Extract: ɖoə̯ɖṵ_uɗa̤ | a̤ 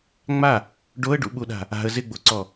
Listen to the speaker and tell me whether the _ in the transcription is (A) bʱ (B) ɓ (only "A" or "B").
B